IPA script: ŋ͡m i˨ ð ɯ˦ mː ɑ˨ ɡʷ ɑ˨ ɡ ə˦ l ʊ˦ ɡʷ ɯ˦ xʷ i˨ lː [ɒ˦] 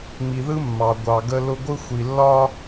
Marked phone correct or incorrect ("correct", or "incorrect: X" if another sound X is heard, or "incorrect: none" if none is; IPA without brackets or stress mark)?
correct